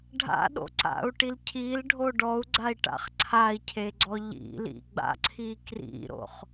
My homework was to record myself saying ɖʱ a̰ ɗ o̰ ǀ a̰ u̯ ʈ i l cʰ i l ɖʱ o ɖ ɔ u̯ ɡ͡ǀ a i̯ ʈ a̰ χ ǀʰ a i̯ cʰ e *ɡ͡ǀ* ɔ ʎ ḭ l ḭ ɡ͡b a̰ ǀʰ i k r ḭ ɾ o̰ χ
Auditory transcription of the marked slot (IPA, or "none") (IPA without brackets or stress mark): ɡ͡ǀ